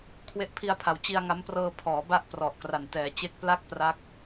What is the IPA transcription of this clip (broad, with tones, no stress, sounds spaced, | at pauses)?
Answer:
kʰ w e˦˥ ʔ pʰ i˧ a̯ pʰ a˩˦ w t͡ɕ i˧ a̯ ŋ a˦˥ m p r ɤː˧ pʰ ɔː˩˦ b a˥˩ ʔ p r ɔ˨˩ ʔ k r a˨˩ n t ɛː˩˦ t͡ɕ e˥˩ k̚ p l a˥˩ k̚ p r a˦˥ k̚